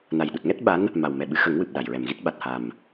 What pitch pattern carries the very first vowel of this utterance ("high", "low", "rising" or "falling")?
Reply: low